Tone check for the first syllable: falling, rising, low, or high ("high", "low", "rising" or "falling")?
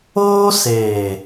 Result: high